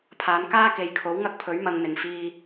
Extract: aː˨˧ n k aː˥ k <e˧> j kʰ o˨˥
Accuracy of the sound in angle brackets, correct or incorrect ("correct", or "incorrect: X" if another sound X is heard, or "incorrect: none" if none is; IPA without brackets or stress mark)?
incorrect: e˨